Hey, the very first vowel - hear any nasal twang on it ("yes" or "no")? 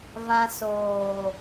yes